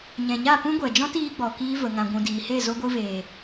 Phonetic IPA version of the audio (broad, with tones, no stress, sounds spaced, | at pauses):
ɲ ɛ̃˨ ɲ a˦˨ p ũ˦ ɡʷ ɛ˨ d͡ʒ ɔ̃˦ t iː˧ ɡ͡b ɔ˨ k iː˧ v ə˨ ŋ ã˨ ɡʷ ũ˨ d iː˨ h e˦˨ z o˧ ɡʷ ɨ˧ v eː˨